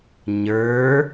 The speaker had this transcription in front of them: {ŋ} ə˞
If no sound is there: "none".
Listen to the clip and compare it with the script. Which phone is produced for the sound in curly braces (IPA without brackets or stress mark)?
ɲ